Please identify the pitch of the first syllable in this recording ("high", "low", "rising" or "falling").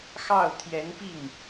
falling